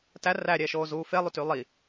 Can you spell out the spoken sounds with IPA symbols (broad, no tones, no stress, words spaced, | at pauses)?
tæ ræɾʲɛːʃoːzuː felˠuty lˠi